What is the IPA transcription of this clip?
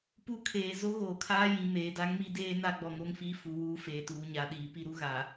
pu˦kʰeː˨ zo˦ɣoː˨kʰaː˦jĩ˨ meː˨da˦ŋmi˦deː˦ na˦ɡ͡bɔ˨ŋo˦ŋfiː˦ fu˨ wuː˦feː˨tuː˨ ɲa˨ ɗiː˨pi˦ɾu˦ ɣa˨

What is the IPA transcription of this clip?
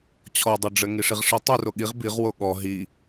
t͡ɕʰɔdˤoɖ͡ʐɘ ŋiʂiʁʂi tˤu roɠiʁ biʁwo ɠɔ ɦi

